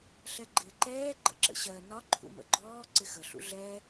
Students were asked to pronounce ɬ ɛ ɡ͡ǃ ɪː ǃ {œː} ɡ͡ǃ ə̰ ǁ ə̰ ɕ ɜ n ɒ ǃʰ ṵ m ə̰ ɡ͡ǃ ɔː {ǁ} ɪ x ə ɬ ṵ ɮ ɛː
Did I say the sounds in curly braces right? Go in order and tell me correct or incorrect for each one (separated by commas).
incorrect, incorrect